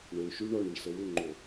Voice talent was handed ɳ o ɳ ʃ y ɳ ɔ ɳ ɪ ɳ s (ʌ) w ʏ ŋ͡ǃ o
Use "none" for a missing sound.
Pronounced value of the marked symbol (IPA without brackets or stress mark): ə